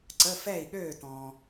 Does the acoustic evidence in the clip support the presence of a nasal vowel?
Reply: yes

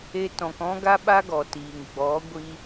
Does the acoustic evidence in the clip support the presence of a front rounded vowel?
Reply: no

